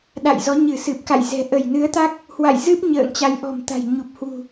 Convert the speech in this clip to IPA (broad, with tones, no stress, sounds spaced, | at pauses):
ɗ a̰˧˨ j z ɔ˨˦ ɲ ɨ˧˩ s ɨ˨˩ p̚ k a̰˧˨ j z ɛ̤˨˩ ʔ ə˧˩ j n ɨ˨˦ ə̯ t̪ a˦˥ k̚ | h w a̰˧˨ j z ɨ˦˥ p̚ ɲ ə̰ː˧˨ ŋ t͡ɕ a˨˦ j ʔ ɔ̤˨˩ m t̪ a̤˨˩ j ɲ u˨˩ p̚ h w ṳ˨˩